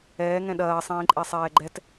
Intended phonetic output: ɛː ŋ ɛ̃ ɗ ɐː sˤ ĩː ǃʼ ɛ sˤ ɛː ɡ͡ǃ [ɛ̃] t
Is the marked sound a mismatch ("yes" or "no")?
yes